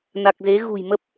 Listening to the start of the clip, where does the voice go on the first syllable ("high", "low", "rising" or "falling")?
low